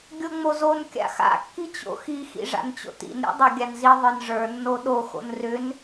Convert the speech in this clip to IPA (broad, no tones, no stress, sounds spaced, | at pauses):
ɡʲ o ŋ͡m o z o n kʲ a̰ x a̰ kː i t͡ɕ o̰ x i x ḭ ʐ a̰ n t͡ɕ o̰ t ḭ n ɾʲ o̰ dˤ a ɡʲ a n z i ðˤ ə˞ n ʐ ə˞ nː o ɗ o x o̰ n r ʏ n